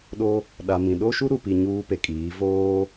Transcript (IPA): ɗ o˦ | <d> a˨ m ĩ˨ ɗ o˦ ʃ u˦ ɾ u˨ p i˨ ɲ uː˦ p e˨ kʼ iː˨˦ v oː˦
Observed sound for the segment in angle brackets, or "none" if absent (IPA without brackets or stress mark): ɗ